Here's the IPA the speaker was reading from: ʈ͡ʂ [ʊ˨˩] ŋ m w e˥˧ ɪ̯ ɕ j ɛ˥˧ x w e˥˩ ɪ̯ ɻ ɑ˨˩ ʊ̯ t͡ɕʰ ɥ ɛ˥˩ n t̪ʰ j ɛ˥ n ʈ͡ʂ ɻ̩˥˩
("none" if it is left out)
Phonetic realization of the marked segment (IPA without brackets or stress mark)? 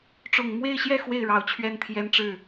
ʊ˨˩